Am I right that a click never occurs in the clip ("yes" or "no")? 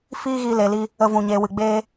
yes